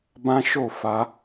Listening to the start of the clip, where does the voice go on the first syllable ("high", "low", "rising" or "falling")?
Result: high